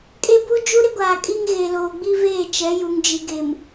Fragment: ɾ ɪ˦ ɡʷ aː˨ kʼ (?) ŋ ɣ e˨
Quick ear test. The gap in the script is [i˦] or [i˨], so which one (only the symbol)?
i˦